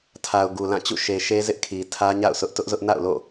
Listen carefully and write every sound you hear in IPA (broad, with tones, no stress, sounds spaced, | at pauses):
tʰ a˨ ʊ̯ ɡ u˨ l ã˦˨ t͡ɕ ṵ˦˨ ʃ e˨ ʃ e˦ z ɪ˦ ʔ kʰ i˨ tʰ ä˦ ɲ a̰˦˨ ʊ̯ sʰ ʊ˦ ʔ t ʊ˦ ʔ z ʊ˦ ʔ n a̰˦˨ ʊ̯ l o̰˦˨